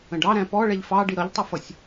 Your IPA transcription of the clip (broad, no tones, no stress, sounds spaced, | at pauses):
ə̃ ɖ ɑ ɾ æ̃ p ɔ ɭ ɛ ʎ f ɑ ɖ i ɾ ʌ ʎ tˤ ʌ f ʌ sʲ